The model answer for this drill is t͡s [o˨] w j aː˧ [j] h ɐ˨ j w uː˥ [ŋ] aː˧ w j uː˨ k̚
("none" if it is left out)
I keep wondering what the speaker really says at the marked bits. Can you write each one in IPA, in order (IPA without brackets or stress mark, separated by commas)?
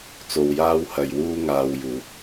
o˨, w, ŋ